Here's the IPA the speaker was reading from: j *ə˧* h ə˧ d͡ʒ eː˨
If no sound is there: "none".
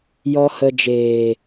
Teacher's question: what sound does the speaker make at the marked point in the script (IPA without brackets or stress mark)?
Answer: ɔ˧